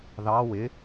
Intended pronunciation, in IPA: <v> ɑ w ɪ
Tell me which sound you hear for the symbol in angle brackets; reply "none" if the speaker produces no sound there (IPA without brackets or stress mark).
ð